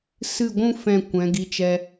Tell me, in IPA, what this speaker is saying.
s ɨ˦˨ ɡʷ ũ˦ f ɛ̃˦˨ kʷ ɛ̃˨˦ ɡ i˧ t͡ʃ ɛ˧

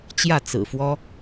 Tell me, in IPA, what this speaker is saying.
t͡ɕ j ä˥˩ t͡s ɹ̩˨˩ f w ɔ˥

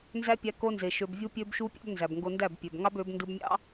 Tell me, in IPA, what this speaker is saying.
n z æ˦ pʲ æ˧ k o˧ n z e˨ ʃ ø˧ b vʲ u˦ pʲ ø˦ b ʃ u˦ pʲ ɑ̰˦ b n z æ˨ b ŋ ɡ o˧ n d æ˦˨ b pʲ ø˨ b ŋ ɑ˦ b ø˨˦ b n d ɯ˧ b mʲ ɑ̰˦

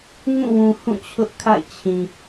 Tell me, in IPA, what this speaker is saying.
ŋ ũ˦˨ w ũ˨ h ũ˦˨ t͡ɕʰ ʊ˦ ʔ kʰ a̰˦˨ ɪ̯ t͡ɕʰ ĩ˨

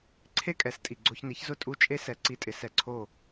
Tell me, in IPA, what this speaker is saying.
ǀʰ e˥ kʼ ɛ˩˥ s tʼ i˩ ɡ͡ǀ o˧ ç n i˩˥ ç z ʊ˥˩ tʼ u˥˩ t͡ʃʼ e˥ s ɛ˧ ǀ i˥˩ tʼ ɪ˧ s ɛ˧ ǀʰ o˥˩

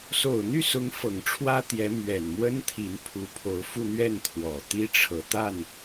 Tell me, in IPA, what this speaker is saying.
s o˨˩ ʊ̯ n̪ y˥˩ s ʊ˧˥ ŋ f ɤ˨˩ ŋ ʈ͡ʂʰ w ä˥ t̪ j ɛ˧˥ m ɥ ɛ˨˩ n m w ə˥ n t̪ʰ i˧˥ n pʰ u˧˥ pʰ o˧˥ ʊ̯ f u˥˧ n̪ ɥ ɛ˥˩ n t̪ʰ w ɔ˨˩ t̪ i˥ ʈ͡ʂʰ ɤ˨˩ t̪ a˥˩ n

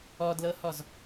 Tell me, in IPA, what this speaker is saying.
ɔ d l ɤ h ɔ z

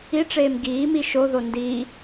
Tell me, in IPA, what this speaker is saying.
i ʈ͡ʂ eː m ɡ iː m i ʃ o ð o n d iː

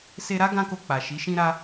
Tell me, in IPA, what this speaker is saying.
s e˧ ɾ a˦ ɡ ã˦ k o˧ k͡p a˨ ʃ i˨˦ ʃ ĩ˦ ɾ a˦

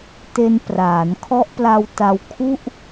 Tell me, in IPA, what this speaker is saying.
t e˧ n p r aː˩˦ n kʰ ɔ˦˥ ʔ p l a˧ w t a˧ w kʰ u˥˩ ʔ

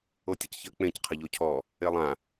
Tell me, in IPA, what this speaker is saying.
o tʲ ɨ c ç ə k͡p ẽ c qʰ ə ʎ o cʰ ɔ | e lˠ ã

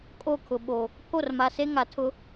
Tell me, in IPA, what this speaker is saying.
kʼ o˦˨ kʰ ʊ˨ ɓ o˨ | pʰ o˦˨ r m a˨ s e˦ ŋ a˨ tʰ ʊ˦

